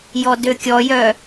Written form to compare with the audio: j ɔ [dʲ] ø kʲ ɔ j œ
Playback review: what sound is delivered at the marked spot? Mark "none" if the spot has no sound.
d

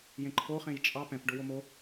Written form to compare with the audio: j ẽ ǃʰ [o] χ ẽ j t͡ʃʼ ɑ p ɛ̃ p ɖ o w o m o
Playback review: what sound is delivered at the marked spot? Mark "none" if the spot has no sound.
o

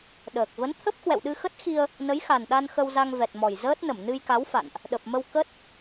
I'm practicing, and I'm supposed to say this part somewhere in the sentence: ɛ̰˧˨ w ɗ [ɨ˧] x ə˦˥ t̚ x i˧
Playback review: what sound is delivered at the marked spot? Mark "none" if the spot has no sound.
ɨ˧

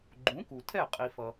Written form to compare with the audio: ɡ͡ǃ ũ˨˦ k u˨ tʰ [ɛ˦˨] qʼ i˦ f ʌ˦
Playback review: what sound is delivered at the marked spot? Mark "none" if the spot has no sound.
ɛ˦˨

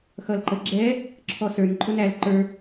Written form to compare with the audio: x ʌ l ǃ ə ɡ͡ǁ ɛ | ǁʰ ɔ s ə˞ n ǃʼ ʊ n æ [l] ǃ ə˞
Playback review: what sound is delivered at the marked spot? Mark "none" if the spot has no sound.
l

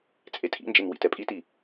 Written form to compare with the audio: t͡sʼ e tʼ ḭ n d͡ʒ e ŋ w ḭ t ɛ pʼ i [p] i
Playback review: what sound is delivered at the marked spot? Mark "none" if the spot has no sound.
t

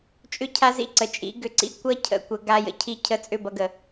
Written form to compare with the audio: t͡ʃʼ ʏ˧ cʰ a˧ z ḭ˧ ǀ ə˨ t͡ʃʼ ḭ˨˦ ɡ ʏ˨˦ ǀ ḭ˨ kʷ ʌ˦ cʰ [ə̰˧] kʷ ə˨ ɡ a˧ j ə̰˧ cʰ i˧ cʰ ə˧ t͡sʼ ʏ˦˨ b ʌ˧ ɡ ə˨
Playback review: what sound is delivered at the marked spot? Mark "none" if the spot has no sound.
ə̰˧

